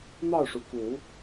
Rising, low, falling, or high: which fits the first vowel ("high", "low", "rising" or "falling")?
falling